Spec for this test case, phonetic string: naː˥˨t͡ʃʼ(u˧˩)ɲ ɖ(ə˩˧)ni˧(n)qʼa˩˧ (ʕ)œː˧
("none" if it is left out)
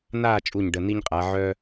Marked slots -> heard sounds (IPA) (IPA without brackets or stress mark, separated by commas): u˧˩, ə˩˧˩, ɲ, ʕ